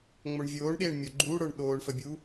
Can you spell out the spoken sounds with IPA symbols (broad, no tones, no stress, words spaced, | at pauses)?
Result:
ŋ͡moɳvʲoːɳɗeːɳ mʲoɡ͡ǃuːɽə˞ɳ ɗoːɳfə bʲu